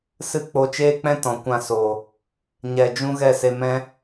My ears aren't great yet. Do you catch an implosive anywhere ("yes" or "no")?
no